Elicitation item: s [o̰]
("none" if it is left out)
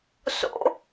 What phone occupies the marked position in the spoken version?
o̰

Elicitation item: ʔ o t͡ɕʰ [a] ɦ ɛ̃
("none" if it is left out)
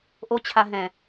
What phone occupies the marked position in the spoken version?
a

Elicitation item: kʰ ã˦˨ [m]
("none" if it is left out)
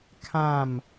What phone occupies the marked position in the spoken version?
m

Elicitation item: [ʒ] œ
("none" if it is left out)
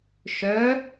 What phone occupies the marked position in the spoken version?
ʃ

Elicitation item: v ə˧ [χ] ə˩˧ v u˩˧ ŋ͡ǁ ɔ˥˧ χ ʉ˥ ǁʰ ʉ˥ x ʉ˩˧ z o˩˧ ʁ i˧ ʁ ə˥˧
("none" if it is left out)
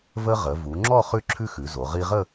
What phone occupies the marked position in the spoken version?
ʁ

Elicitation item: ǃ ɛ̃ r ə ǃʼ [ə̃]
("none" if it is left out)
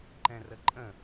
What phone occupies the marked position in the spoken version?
ə̃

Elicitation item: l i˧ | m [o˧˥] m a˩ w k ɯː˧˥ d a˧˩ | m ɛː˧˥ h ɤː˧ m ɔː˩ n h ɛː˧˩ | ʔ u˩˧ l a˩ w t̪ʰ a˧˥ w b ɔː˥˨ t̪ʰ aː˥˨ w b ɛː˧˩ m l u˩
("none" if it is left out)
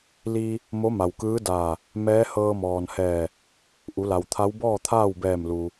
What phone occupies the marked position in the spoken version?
o˧˥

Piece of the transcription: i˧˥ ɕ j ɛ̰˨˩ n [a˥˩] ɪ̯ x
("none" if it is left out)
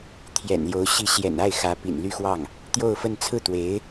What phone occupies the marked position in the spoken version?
a˥˩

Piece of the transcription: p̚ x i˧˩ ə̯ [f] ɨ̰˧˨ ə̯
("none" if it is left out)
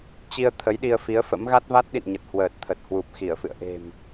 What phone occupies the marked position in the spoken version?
f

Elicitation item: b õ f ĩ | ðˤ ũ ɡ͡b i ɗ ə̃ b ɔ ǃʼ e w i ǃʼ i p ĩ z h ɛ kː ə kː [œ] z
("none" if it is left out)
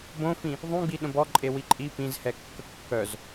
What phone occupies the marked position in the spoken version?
œ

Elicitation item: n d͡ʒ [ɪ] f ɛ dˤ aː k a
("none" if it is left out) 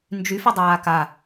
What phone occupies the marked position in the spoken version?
y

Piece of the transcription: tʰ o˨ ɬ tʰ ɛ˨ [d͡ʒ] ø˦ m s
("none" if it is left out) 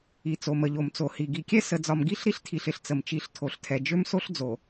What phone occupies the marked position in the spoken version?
d͡ʒ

